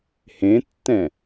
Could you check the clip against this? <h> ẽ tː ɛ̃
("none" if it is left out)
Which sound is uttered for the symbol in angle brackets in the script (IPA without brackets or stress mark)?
h